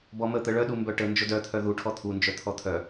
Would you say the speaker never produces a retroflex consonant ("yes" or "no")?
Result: no